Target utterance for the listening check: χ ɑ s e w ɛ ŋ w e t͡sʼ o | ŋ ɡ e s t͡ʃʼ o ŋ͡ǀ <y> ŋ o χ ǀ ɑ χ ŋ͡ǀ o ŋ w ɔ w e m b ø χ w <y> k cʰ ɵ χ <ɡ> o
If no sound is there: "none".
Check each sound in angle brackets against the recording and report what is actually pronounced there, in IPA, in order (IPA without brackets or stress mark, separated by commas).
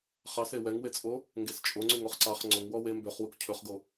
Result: y, u, ɡ